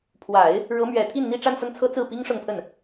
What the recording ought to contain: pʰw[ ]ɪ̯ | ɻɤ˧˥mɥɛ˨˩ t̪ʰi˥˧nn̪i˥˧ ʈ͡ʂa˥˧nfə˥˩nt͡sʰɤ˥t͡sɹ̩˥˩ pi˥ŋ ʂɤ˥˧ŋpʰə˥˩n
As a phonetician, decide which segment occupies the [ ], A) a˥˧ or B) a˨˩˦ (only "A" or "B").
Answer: B